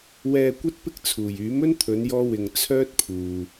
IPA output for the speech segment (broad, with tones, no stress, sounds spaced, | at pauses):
w ɛː˧ kʷ ɐ˥ t̚ p ɪ˥ k̚ t͡sʰ uː˨˩ j yː˨˥ m ɵ˥ n t̪ʰ ɵ˨˧ n j ɔː˥ w ɪ˧ ŋ t͡sʰ œː˥ t̚ pʰ uː˨